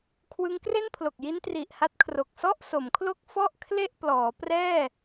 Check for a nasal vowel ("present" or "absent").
absent